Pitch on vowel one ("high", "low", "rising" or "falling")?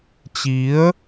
rising